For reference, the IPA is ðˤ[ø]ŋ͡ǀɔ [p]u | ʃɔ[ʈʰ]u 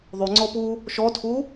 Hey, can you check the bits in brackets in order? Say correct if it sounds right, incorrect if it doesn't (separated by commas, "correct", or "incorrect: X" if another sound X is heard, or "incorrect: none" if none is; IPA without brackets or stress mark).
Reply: incorrect: u, correct, incorrect: tʰ